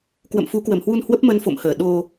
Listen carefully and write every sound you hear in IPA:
k w ə̰˧˨ m f u˨˦ k w ə˧˩ m h w u˧ n h w ə˦˥ p̚ m ə˧ n f o̰˧˨ m h əː˧˩ ɗ o˧

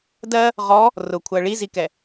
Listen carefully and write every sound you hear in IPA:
d ɜ | ʁ ɔ | r ʊ kʷʰ ɜ ɭ i z i k ɛ

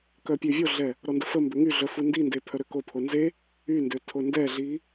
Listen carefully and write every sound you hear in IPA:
k œ pʲ ø vʲ o ɮ ɛ | ɾ ɔ n d ə f ə m b ø ŋ y ɮ œ f u n d i n d e pʰ œ ɾ ø k o pʰ o n z e | y n d ø tʰ o n d ɛ ɮ i

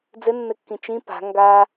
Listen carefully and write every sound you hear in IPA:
d͡z ɘ nː ɘ kː ĩ t͡ʃ ĩ p a̤ ŋ ɡ a

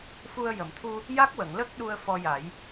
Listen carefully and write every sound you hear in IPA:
f u˧ ə̯ j ə˨˩˨ m t̪ʰ u˧ | j a˦˥ k̚ w ə˨˩˨ ŋ l ə˦˥ k̚ ɗ u˧ ə̯ f ɔ˧ j a˨˩˦ j

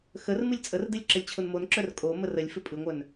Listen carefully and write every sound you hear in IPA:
x ə r m ɨ lʲ t͡sʼ ə r d ɨ lʲ ǁ ə lʲ t͡ɕʰ ʊ n m o n ǁ œ r kʼ o m ə r ə lʲ f ɪ pʼ ɨ ŋʷ œ n

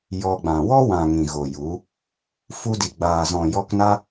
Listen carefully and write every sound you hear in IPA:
j ɔ˧ ɡ͡b ã˨ w ɔ˦ w ã˨ ŋ ĩ˨ ɣ o˨ j u˨˦ | f u˧ d i˨ ɡ͡b aː˨ z ɔ̃˨ j ɔ˧ k n a˦

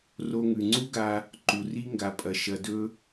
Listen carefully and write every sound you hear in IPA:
r o˧ ŋ ʉ˨ ŋ͡ǀ u˦ ɡ a˧ | ǃ u˨ r i˦ ŋ ɡ a˨ pʼ ɐ˨ ʃ ɐ˨ d ɵ˧

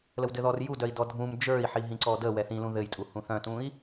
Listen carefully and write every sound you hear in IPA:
l ə w d ɘ ð ɔ r j u d œ i̯ d ɔ dʱ ũ m d͡ʒ ə˞ i̯ ħ i ɦ ĩ ǀ ɔ d ə w ɛ θ ĩ l ũ ð ɘ j tʼ u h ũ θ œ̃ t ũ i̯

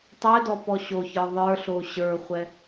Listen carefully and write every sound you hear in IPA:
tˤ ɛ d ɔ p ɔ ɕ o ç ə˞ ðˤ ə˞ ɬ o ɕ ə˞ χʷ ɛ

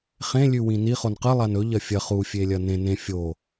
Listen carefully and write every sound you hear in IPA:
χ ẽ lʲ ʉ w ĩ n i χ o n q ɨ lˠ a n ɵ ʎ ɐ fʲ ɐ χ u fʲ e lʲ ɐ n ẽ n ẽ fʲ o

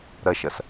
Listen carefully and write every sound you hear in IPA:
ɾ ɐ ʃ ɐ s

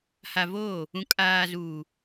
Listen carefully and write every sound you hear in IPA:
h a˨ v oː˦˨ | ũ˨ kʼ aː˨ z uː˨

